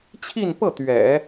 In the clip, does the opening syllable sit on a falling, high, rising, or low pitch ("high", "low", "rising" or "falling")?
falling